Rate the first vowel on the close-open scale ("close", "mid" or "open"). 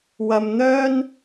open